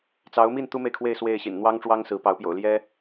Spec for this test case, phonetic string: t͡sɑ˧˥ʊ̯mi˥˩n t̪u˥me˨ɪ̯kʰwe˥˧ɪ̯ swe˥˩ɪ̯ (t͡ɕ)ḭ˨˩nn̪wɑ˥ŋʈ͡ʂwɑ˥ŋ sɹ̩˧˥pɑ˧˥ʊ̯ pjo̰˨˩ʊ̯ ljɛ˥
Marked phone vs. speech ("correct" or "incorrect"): incorrect